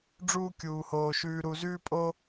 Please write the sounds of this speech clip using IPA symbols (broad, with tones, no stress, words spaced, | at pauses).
ɖ͡ʐuː˥ kʲuː˧hoː˧ ʃʉː˧ɾu˧zʉː˥pʼo˥